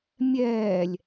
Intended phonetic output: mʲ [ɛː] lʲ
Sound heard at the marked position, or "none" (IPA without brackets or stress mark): ɛː